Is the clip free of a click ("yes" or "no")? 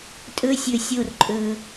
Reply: no